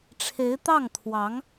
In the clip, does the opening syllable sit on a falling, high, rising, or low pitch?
rising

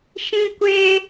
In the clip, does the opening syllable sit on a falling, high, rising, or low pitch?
high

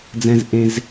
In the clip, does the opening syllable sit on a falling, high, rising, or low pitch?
high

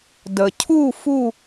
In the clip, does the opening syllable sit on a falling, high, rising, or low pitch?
low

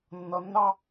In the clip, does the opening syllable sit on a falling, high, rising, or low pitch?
low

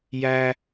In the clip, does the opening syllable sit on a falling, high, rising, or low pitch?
high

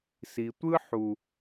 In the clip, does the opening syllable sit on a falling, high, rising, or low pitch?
low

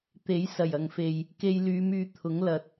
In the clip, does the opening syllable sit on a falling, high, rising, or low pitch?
rising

